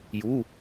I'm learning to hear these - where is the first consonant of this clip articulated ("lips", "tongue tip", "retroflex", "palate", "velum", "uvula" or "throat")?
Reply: palate